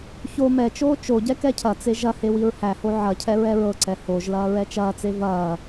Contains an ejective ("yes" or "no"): no